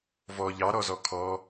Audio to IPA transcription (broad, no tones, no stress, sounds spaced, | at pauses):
v ɔ ʎ ɑ ɾ ɔ z ɔ kʰ ɔ